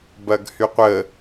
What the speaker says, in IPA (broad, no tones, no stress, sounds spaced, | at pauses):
b ɐ ɡ h y qʷ ə